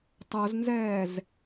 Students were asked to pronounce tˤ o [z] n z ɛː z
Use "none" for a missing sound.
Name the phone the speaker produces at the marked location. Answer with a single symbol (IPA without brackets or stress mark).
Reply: z